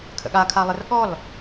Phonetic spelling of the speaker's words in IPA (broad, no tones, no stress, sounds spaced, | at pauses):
kʰ ə̰ ɠ a kʰ a lˠ ə r ɠ ɔ l